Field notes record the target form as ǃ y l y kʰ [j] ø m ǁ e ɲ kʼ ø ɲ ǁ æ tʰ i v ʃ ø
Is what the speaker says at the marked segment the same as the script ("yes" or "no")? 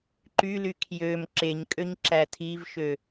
yes